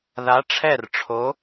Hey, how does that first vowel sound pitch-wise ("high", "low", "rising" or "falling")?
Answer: rising